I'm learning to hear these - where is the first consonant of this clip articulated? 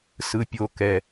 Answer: tongue tip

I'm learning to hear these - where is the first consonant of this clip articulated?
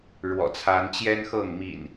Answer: retroflex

